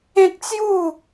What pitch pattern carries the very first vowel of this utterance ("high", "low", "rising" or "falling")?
high